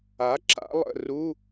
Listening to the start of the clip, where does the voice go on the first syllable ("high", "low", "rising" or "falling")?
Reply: rising